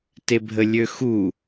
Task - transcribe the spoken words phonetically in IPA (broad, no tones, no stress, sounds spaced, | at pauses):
t e bʱ ə lʲ ø x u